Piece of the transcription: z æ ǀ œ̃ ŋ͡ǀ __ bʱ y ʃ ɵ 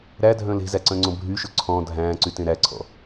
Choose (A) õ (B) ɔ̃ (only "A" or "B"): A